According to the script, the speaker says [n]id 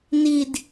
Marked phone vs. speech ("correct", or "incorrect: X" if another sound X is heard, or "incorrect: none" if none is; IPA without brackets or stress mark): correct